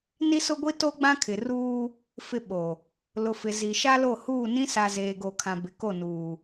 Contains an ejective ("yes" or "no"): no